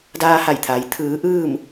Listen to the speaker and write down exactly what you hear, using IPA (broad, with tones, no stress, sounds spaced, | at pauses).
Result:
d aː˧ h a˧˩ j t̪ʰ a˩˧ j t̪ʰ ɯː˩˧ ʔ ɯː˥˨ m